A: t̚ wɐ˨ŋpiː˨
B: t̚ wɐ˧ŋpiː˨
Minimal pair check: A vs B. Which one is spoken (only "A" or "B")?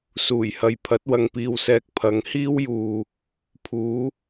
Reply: A